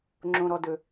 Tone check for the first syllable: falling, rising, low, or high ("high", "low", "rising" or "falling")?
low